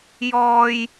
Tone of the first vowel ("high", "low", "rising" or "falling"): high